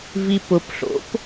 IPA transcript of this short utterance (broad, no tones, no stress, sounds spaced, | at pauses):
v i p ʊ p ɬ o̰ p